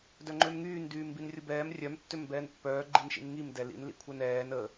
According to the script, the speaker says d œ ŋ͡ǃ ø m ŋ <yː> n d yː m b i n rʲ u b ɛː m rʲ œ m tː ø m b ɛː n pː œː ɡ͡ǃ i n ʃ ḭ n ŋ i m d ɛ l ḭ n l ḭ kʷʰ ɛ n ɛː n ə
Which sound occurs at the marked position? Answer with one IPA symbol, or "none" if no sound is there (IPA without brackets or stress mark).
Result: yː